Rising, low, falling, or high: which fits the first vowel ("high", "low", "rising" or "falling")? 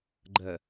low